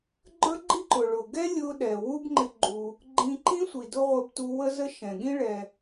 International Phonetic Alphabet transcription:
ɡ͡ǃ ə˞˥ ɡ͡ǃ i˥ ǃ ʊ˩ ɭ ʊ˩ ɡ ɛ˥ lʲ ʊ˧ ɗ ɛ˩ w u˥ b ŋ͡ǃ ɪ˧ ɡ͡ǃ u˩ | ɡ͡ǃ ĩ˧ ǃ ĩ˥ sʷ i˩ d ʊ˥ ʁʷ ɪ˧ b t u˧ w ə˥ z ə˥ ʃ ɛ̃˩ ɠ ĩ˥ ɭ ɛ˩

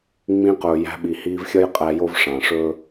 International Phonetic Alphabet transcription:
ŋ͡m ĩ˧ q ɵː˨ j æ̤˧ ɓ i˨ h iː˧ v xʲ ʌ˦ j qʼ æ˧ j o˦ v ʂ ɑ̃˨ ʂ ɵː˦

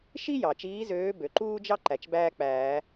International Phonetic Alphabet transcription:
ʃ i˥ j ɑ˩ t͡ʃ iː˨˦ z øː˨˦ b ø˩ ǃ uː˥ d͡ʒ ɑ˥ ǃ æ˩ t͡ʃ b æː˥ k͡p æː˨˩˦

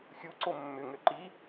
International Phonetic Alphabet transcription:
xʲ u ǀ o mː ʏ ŋ ø ǃ i

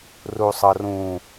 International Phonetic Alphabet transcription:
r u sˤ ɤ r ũ

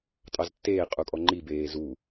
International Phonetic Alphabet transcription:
tʼ ɑ z tː eː qʼ u kʼ ɔ ŋ͡ǃ i b eː z u

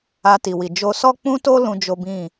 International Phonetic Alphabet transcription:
a˧ t i˨ w i˨ d͡ʒ o˧ s ɔ˦ k͡p ũ˦ t o˦ l ũ˦ d͡ʒ o˦ b ĩ˦˨

